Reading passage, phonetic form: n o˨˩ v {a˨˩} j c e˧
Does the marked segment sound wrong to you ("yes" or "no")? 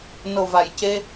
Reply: no